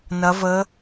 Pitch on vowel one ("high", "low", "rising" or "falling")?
rising